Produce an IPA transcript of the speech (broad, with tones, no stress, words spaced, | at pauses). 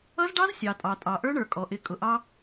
ʌ˦zɖɑ˦z sʲɑ˨tʼɑ˨tʼɑ˨ ʔə˞˦ɳə˞˨kʼɔ˨ʔɪ˨˦ kʼʊ˨ʔɑ˦